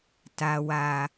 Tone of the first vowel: low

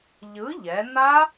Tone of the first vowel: rising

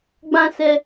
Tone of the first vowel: high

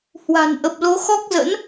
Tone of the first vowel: low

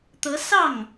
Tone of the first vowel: rising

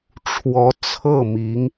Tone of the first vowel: rising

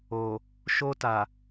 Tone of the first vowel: low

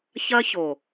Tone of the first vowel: high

